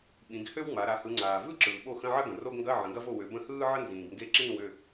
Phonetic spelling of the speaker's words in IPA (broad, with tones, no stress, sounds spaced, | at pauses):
ɓ ĩ˩˧ ɡ h ø˥ w ŋ͡m a˩˧ ɾ a˩˧ h ɯ˩˧ ŋ͡ǀ aː˩ v ɯ˥ ǁ ɯː˩ ɓ o˥˩ x ə̃˧˥˧ ʕ ɐ˥ ɡ ə̃˩ r o˧˥˧ ɡ ŋ ɡ ɐ˧˥˧ ʕ ə̃˩˧ ɡ ɐ˥ v o˥˩ w ø˩˧ b ə̃˥˩ h ɯː˥ ʕ ə˥ n z ĩː˩ ɡ ŋ ɡ e˥˩ ǁ ĩː˥˩ w ø˥˩